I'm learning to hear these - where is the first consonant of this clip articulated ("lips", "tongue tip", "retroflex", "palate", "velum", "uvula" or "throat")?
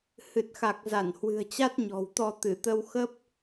throat